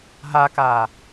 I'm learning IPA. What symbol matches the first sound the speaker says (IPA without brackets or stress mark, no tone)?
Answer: ɦ